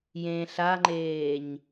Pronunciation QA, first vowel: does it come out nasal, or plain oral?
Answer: nasal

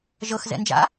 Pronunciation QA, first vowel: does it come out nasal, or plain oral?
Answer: oral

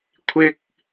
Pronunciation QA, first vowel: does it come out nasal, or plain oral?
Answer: oral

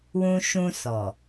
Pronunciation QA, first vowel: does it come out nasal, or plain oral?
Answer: nasal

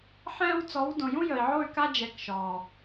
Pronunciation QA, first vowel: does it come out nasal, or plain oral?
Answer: nasal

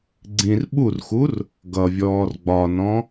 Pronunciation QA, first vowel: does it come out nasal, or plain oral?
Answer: nasal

